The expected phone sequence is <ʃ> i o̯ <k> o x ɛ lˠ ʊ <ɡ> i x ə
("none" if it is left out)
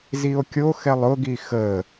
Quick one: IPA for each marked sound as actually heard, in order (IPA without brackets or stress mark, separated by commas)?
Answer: z, kʲ, ɡ